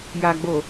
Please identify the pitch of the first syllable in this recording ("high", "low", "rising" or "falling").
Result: low